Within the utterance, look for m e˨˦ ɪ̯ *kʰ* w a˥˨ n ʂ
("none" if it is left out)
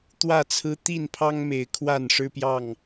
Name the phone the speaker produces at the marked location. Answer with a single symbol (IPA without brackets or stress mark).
kʰ